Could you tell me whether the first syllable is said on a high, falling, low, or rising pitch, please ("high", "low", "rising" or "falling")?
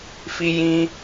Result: high